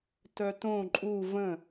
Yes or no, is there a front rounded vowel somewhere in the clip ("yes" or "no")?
yes